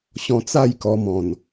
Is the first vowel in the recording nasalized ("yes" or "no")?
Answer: yes